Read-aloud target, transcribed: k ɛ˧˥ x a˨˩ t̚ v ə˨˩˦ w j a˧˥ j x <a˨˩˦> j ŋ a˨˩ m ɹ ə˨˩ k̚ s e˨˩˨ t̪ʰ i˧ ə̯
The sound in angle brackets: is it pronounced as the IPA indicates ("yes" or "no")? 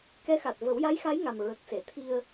no